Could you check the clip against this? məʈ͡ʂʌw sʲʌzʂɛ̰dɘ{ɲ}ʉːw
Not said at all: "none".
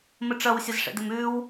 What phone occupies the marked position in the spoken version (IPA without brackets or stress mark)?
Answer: m